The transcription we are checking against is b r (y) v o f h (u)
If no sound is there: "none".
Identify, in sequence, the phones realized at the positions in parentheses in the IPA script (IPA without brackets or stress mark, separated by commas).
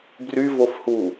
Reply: y, u